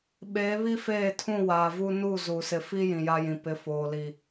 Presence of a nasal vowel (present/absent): present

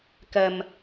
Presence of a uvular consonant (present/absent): absent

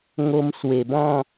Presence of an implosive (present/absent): absent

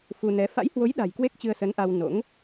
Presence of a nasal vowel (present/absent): absent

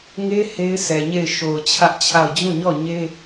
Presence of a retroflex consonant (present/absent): absent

